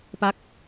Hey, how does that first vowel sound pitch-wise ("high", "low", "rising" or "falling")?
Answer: falling